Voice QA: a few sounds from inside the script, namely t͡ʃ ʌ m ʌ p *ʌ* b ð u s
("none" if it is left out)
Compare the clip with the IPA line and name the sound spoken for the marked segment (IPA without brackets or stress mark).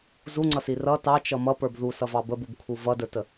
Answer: ə˞